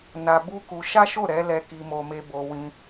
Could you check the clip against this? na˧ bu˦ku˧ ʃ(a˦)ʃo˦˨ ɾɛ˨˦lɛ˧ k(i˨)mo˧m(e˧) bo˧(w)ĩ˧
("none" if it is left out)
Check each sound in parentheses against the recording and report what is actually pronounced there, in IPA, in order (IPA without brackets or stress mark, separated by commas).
a˦, i˧, e˧, w